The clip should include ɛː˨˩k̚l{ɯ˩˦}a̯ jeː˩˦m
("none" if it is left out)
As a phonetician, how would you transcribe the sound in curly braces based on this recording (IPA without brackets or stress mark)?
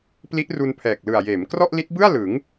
ɯ˨˩